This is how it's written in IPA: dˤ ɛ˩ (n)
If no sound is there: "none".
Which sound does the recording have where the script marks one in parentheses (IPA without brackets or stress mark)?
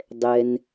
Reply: n